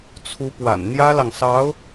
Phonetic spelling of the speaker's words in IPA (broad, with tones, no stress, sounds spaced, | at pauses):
t͡sʰ u˧˥ p w a̰˨˩ n n̪ j ä˥ l ɑ˨ ŋ s ɑ˧˥ ʊ̯